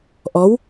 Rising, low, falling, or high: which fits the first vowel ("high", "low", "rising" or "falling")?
rising